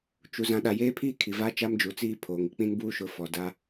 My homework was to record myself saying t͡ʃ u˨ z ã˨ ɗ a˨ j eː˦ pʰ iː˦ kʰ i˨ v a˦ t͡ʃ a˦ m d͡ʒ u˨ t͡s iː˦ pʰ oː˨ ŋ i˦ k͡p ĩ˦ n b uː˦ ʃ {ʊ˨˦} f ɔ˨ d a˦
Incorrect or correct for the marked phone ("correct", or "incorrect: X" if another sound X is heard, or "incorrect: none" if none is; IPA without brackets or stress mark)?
correct